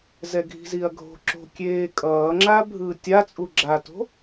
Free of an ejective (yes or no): no